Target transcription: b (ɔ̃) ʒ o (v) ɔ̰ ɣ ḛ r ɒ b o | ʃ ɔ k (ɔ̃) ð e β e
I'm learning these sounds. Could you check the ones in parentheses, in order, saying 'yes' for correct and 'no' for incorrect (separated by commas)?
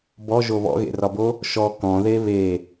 no, no, yes